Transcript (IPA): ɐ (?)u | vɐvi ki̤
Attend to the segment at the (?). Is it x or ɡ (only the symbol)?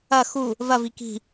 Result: x